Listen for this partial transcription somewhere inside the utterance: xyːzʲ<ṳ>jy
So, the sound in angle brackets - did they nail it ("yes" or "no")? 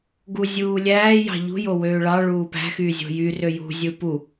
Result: no